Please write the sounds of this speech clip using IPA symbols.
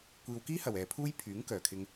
kʷiː˨wkiː˥hɐ˨˩w ɛː˨pʰuː˥j pʰyː˨˥ŋkœː˨˩kʰɪ˧ŋ

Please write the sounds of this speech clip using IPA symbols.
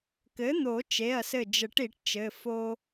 kɘ˩˥n̪o˨˩˦ t͡ʃe˩˧˩ɐ̯sɘ˧˩d͡ʒə˨˩˦ʈ i˨˩˦ʈt͡ʃɘ˩˧˩ fo˦

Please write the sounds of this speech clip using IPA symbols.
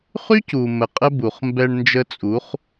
χy˦c u˨ mə˨ qʼə˦bu˨χ mbɛ˧ɳ nd͡ʒə˧t͡sʼu˨˦χ

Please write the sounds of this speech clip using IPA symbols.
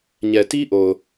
ɲɛ˨ti˦ʔo˨ʊ̯

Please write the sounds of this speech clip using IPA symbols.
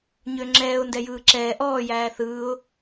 ɲøŋ͡ǁɛːʊ̯ ndɛjɯːǁɛː ʔɔː jæːθɯːʊ̯

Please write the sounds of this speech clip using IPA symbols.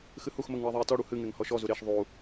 xɨhuxməŋ ɳɨi̯ðˤei̯tɔɽu hɨŋeŋ hɔʃɔzu ɾeʃ ðˤu

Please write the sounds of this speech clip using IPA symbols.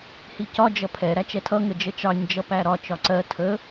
hicɒ d͡ʒʌpʰɛ ɾæt͡ʃɛtʰʌ ŋəd͡ʒət͡ʃɑɲ d͡ʒʌpæɾɒ t͡ʃɒǀɜ tʰə

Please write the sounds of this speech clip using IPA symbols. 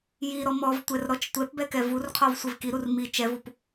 jiɾɔ mɔvtʷɛrɾɔt͡ʃ tʷɛpbɛkɛ vurqʰɔv sʷivkiɾur mi t͡ʃɛvup

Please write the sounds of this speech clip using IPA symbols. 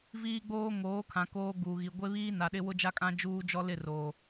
viː˦ɡ͡boː˦ ŋoː˨˦kʰã˨ koː˦ɡuː˨ɣi˨ ɡʷe˦βiː˦ na˨ɗɪ˦ wʊ˦d͡ʒa˦kʼã˦ d͡ʒuː˦d͡ʒɔ˦ lɪ˦˨roː˨

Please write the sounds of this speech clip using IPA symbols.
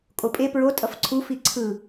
kʼopʼe pɹo tʼʌfǀʰu fiǀʰɯ

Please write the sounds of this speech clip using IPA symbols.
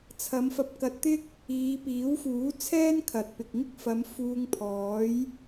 t͡sʰɐ˨˧mfɐ˧p̚kɐ˧t̚t̪ɪ˥k̚ | iː˨˧piː˨˥wfuː˨˥ t͡sʰɛː˥nkʰɐ˨t̚pɪ˨k̚ŋɪ˥k̚ fɐ˨˧m fuː˧ŋpʰɔː˨˥j

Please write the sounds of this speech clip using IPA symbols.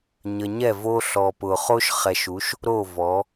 ɲə˨ɲɛ˦˨ vo˦ɬɔ˨pʊ˨ χo˦ʃχɛ˨ʃu˨˦ʃ | ɾo˦˨vɔ˨˦

